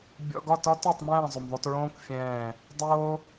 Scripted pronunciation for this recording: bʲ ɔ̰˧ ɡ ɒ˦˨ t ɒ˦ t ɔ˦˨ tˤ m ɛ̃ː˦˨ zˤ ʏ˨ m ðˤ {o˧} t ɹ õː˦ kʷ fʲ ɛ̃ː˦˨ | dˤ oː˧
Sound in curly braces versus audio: correct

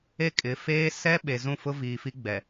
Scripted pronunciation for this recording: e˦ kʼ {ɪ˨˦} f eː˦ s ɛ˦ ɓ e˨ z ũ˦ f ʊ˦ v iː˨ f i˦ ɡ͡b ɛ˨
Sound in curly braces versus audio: correct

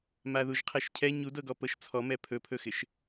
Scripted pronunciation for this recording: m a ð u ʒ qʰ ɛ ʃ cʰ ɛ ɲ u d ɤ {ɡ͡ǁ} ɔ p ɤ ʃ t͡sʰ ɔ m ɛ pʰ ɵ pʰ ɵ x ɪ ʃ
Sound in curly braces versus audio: incorrect: ɡ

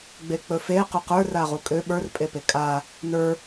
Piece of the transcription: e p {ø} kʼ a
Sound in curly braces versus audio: incorrect: e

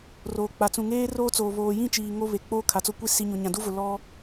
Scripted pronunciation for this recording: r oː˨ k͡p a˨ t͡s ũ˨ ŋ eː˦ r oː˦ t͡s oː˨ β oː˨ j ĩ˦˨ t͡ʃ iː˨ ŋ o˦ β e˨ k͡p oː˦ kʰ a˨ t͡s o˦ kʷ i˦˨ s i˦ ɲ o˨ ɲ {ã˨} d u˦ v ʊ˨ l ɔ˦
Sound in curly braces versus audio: correct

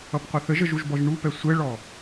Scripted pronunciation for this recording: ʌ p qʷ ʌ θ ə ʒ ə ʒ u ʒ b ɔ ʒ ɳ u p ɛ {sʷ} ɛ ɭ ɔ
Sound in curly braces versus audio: correct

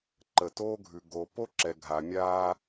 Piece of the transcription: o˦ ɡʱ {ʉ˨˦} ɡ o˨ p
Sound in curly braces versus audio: incorrect: ʉ˨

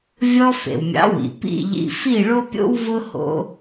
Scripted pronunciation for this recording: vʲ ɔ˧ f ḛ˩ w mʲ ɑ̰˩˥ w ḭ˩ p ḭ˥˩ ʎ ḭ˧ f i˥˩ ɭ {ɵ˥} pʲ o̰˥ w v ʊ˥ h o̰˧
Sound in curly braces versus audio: incorrect: o˥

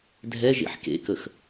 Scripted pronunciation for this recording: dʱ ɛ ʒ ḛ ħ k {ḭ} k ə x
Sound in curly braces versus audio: incorrect: ḛ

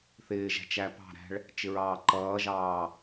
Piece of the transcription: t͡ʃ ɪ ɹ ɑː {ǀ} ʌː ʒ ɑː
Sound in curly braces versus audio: incorrect: ǃ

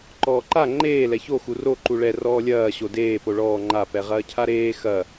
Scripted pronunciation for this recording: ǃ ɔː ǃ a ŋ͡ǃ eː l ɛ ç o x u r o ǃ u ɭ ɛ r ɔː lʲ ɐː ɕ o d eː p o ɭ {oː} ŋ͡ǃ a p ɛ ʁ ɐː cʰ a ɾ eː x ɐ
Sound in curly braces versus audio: incorrect: ɔː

